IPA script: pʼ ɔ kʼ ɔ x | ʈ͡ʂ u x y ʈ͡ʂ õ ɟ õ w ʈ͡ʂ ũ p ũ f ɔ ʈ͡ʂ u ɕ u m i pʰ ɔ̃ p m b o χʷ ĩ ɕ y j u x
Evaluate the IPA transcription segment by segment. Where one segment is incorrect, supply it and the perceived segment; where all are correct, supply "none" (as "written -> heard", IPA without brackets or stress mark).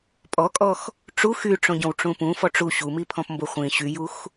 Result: none